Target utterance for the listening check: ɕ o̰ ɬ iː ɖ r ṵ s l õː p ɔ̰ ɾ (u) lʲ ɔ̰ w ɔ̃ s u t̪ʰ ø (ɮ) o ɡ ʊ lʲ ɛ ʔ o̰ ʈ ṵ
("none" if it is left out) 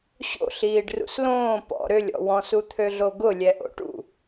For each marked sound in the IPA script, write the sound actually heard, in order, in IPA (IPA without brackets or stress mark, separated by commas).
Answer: ʏ, ɮ